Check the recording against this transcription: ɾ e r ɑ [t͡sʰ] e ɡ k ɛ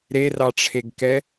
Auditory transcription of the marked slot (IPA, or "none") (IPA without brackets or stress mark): ʈ͡ʂʰ